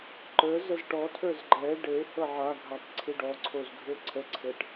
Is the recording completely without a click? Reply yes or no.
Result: no